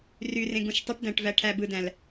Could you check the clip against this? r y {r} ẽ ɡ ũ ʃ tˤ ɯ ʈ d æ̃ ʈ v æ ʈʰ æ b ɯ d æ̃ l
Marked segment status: correct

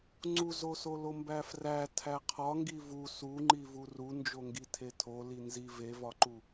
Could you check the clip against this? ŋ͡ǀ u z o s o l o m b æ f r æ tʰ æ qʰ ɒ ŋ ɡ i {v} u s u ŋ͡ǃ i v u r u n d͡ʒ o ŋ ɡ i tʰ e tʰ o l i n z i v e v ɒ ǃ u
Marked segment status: correct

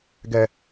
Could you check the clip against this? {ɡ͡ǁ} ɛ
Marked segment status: incorrect: ɡ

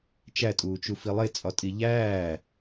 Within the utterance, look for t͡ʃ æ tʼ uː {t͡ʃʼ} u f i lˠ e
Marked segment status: incorrect: t͡ʃ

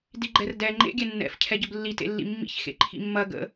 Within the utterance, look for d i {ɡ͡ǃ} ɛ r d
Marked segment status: correct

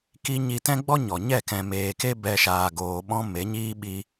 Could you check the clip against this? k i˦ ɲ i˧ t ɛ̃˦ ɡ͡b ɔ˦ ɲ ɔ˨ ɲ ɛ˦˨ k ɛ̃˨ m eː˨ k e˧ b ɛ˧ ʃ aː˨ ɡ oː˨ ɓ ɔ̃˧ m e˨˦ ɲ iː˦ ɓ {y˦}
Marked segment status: incorrect: i˦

